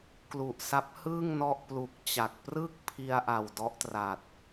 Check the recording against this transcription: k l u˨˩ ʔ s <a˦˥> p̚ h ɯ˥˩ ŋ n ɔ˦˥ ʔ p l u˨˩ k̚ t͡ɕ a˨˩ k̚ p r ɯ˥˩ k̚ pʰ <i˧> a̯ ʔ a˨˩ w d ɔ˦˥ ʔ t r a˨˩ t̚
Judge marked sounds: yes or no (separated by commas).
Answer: yes, yes